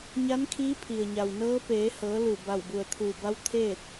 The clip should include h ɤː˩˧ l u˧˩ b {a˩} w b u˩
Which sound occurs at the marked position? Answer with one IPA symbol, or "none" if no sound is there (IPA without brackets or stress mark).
a˧˩